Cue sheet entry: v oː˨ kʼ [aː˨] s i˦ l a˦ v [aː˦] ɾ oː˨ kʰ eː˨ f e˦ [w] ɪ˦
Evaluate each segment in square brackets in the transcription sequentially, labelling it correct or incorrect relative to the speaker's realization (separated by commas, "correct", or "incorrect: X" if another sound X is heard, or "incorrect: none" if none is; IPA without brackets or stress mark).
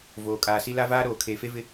correct, correct, incorrect: v